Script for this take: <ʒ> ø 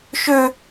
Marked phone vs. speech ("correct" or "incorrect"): incorrect